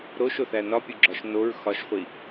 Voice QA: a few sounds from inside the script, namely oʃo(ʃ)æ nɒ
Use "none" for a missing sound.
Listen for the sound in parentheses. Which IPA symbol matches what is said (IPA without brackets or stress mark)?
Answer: θ